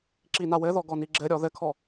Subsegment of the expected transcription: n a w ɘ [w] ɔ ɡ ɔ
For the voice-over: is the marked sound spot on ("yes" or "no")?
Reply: no